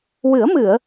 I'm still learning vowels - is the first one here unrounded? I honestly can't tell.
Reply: yes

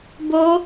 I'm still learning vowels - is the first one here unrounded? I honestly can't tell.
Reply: no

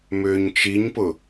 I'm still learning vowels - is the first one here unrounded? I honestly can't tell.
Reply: no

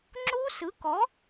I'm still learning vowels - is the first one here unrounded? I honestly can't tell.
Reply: no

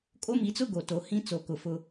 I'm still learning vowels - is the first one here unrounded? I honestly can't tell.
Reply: no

